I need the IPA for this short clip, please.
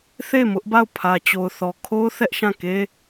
θ e˦˨ m ʊ˦ ʔ b a˦˨ ʊ̯ pʰ ä˨ t͡ɕ o˨ ʊ̯ θ ɔ˨ kʰ o˦ ʊ̯ θ ɛ˦ ʔ ʃ ã˦˨ k e˦

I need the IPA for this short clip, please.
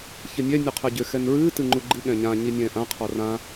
ç ɘ nʲ ɛ nʲ u qʰ ɛ ɟ ʏ x ɛ n ɹ ɨː t ɨ ŋ͡ǃ u ɡ͡ǃ ɨ ɠ ɛ̃ ɲ ã ɲ i nʲ ɛ̃ː ʔ ã qʰ ɔ r ã

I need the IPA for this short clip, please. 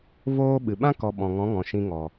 v oː˦ ɓ ɨ˨ ɓ ã˦ k ɔ˧ ɓ ɔ̃˨ ŋ ɔ̃˨˦ ŋ ɔ̃˨ ʃ ĩ˧ ŋ ɔ˨

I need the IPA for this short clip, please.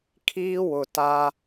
kʰ iː˦ w ʊ˨ t a˦

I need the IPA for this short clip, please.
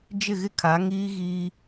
d͡ʒ ɪ˦˨ ɣ ɪ˦ kʰ a˨˦ ŋ iː˦ ɣ iː˦

